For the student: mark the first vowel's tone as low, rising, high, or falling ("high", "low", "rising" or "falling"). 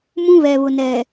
high